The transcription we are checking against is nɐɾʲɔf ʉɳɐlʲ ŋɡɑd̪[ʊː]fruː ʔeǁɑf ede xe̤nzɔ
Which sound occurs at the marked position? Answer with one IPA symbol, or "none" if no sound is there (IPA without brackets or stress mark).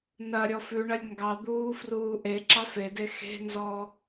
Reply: uː